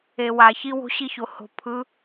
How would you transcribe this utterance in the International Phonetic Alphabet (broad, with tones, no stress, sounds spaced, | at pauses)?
e˨ w a˨ ç i˦ w o̤˦ ɕ i˦ ç o˨ h o̤˨ pʰ ɯ˨˦